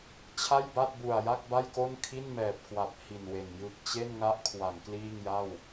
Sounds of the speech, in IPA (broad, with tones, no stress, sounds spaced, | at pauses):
t͡ɕʰ a˥˩ j b a˥˩ t̚ b u˨˩ a̯ j a˥˩ k̚ b a˥˩ j k o˥˩ n kʰ i˥˩ n m ɛː˨˩ p̚ k w a˨˩ p̚ h i˨˩ n w e˨˩ n j ɯ˨˩ k̚ t͡ɕ e˥˩ n ŋ a˦˥ ʔ kʰ w a˩˦ ŋ k l iː˥˩ ŋ j a˥˩ w